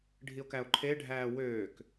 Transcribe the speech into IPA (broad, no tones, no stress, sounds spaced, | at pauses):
ɖʱ i o̯ k æ o̯ ǃʰ e ɖʱ æː w øː k